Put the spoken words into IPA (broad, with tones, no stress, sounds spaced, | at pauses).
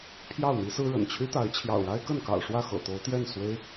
pʰ j ɑ˥˨ ʊ̯ n̪ i˦ s ɹ̩˦ ɻ ə̰˨˩ n t͡ɕʰ y˦ t̪ a˨˦ ɪ̯ t͡ɕʰ j ɑ̰˨˩ ʊ̯ ɻ a˦ ɪ̯ k ə˥˨ n k ɑ̰˨˩ ʊ̯ ʂ w ä˥˨ x ɤ̰˨˩ t̪ o˨˦ ʊ̯ t̪ j ɛ˥˨ n s w e˦ ɪ̯